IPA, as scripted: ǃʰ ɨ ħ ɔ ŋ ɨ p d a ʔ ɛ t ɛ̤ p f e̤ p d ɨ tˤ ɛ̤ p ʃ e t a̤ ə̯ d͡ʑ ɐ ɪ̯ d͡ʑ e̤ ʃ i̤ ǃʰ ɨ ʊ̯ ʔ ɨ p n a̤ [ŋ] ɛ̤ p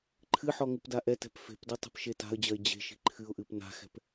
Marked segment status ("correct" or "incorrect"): incorrect